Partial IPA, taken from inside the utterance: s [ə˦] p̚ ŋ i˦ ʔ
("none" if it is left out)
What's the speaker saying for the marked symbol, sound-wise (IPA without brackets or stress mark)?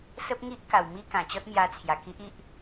ə˦